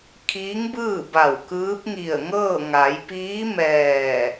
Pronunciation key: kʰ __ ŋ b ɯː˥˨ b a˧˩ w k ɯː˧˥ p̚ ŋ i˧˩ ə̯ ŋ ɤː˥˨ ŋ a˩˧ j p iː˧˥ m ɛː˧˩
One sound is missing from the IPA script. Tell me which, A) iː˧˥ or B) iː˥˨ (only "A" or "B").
A